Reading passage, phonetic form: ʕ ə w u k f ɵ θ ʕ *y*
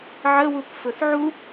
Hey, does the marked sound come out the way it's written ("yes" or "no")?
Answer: no